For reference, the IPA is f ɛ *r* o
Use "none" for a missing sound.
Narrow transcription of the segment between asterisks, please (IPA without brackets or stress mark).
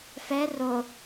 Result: r